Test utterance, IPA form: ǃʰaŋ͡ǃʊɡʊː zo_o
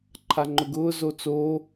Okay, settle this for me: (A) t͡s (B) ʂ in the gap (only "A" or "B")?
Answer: A